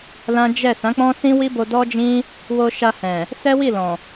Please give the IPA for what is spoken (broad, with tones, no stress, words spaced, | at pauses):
lã˦ d͡ʒɛ˦˨ sã˨˦k͡pɔ̃˦sĩ˦ wi˦bo˧dɔ˦d͡ʒĩ˦ | wo˧ ʃa˧ hɛ̃˨ | sɛ˦wi˦˨ lɔ̃˨